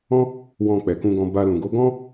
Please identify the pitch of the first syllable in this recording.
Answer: high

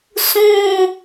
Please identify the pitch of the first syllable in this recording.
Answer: falling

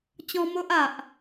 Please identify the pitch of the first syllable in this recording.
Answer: high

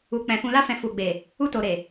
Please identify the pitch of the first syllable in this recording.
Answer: low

